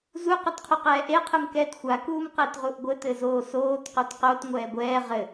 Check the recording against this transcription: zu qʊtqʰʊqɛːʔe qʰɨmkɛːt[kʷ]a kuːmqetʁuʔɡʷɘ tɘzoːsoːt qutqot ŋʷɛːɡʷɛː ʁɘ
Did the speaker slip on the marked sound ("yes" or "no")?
yes